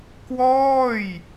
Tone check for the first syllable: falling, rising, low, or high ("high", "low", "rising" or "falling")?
falling